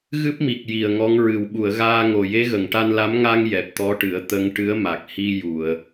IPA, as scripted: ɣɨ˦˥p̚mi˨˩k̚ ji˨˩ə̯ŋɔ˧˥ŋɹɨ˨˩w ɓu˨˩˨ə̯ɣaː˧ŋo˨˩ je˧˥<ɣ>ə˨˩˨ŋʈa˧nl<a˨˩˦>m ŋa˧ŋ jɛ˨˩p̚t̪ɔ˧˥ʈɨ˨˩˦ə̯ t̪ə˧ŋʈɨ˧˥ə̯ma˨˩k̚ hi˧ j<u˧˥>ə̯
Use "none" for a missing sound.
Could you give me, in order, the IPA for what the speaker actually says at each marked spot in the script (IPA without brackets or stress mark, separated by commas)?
ɣ, a˧˥, u˨˩˨